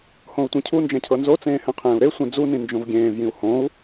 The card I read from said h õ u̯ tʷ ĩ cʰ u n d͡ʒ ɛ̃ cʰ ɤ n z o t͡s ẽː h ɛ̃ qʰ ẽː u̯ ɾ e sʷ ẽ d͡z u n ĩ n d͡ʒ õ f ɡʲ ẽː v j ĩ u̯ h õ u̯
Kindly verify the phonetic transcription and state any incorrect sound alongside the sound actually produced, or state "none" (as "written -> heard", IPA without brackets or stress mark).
f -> v